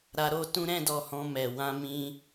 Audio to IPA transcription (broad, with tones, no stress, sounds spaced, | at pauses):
ɾ a˧ ɾ o˧ t ũ˦ ɾ ɛ̃˦ d ɔ˧ h ɔ̃˧ m ɛ˨ w ã˧ m ĩ˧